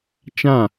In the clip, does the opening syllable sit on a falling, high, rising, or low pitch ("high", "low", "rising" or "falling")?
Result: falling